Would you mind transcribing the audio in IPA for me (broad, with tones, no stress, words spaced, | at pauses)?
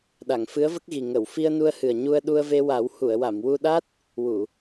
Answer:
ɗa˨˩˨ŋfɨ˧˥ə̯və˦˥k̚ɣi˨˩ ŋə˨˩˨w fi˧ə̯nu˧ə̯hɨ˨˩ə̯ ɲu˧ə̯ɗu˧ə̯ve˧wa˨˩˦w hu˨˩˨ə̯wa˨˩˨mwu˧ɗa˦˥t̚ | wu˨˩˨